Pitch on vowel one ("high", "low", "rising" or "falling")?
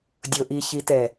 low